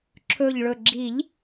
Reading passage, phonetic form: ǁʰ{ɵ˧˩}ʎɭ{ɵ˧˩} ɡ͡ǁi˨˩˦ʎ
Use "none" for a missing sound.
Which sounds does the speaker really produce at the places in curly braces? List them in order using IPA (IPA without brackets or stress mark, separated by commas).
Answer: ɵ˧˩, ɵ˧˩